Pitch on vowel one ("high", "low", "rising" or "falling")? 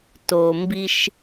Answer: low